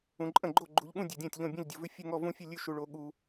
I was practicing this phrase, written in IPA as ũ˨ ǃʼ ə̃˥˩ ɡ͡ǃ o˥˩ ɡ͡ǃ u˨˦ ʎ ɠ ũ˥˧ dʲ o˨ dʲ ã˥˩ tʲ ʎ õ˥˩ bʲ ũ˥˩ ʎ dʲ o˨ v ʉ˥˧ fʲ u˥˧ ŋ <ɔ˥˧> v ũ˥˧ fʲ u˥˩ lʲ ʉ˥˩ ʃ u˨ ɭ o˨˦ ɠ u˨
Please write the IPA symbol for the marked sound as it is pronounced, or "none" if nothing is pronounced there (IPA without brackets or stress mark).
ɔ˥˧